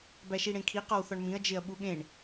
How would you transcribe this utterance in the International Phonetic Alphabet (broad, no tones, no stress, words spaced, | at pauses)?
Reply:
bæʃiɽẽkʰi qɒwθɒɳmĩɐ̯ d͡ʒeɐ̯ɓuɠẽɳ